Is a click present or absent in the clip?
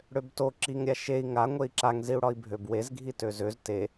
present